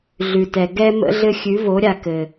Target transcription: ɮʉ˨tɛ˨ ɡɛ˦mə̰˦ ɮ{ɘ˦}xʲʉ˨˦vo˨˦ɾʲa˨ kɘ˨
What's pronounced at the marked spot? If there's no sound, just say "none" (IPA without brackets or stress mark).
ɘ˦